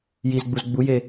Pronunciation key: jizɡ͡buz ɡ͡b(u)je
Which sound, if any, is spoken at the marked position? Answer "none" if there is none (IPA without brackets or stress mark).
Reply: u